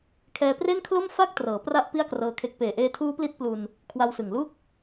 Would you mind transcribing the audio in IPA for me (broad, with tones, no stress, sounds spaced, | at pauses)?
kʰ ɛː˧ p r e˥˩ n kʰ l o˥˩ m f a˥˩ k̚ t r ɤː˩˦ p r a˦˥ ʔ p i˥˩ a̯ k r ɤː˦˥ kʰ e˦˥ k̚ p eː˨˩ ʔ eː˧ tʰ uː˦˥ p l i˦˥ t̚ p l u˧ n | kʰ w a˧ w s ɯ˨˩ ŋ l u˥˩ k̚